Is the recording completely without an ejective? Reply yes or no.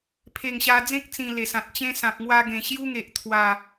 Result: yes